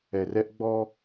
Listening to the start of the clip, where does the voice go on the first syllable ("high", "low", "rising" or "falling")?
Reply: low